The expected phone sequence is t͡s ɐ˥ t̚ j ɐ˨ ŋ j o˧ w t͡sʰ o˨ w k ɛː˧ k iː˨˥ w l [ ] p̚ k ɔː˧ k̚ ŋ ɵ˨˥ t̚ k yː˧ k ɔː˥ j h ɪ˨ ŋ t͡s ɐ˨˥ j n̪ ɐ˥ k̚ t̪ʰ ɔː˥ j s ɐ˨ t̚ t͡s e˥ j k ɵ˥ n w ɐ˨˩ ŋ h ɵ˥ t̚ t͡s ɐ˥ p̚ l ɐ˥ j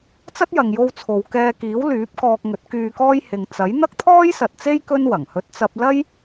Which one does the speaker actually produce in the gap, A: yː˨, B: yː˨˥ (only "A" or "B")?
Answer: B